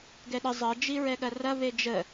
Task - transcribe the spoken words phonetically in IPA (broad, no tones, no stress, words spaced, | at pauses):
ɡɛɗə zˤɐ d͡ʒiɹɛɠɐrɐ βed͡ʒə